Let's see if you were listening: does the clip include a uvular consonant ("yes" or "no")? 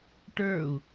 no